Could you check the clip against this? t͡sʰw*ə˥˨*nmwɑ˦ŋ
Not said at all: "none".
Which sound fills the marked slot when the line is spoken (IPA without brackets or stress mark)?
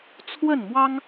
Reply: ə˥˨